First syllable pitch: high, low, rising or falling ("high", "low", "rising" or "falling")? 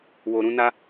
low